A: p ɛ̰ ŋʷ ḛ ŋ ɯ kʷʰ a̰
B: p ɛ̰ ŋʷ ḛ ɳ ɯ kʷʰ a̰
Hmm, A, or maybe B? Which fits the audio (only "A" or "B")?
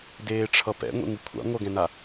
A